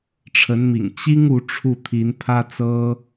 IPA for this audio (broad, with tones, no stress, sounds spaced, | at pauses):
ʈ͡ʂʰ ə˧˥ n m ḭ˨˩ ŋ t͡ɕ i˥ ŋ u˧˥ ʈ͡ʂʰ u˥˩ t̪ʰ i˧˥ n pʰ ä˥ t͡s ɤ˥